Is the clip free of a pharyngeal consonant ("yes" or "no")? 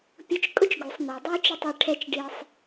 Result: yes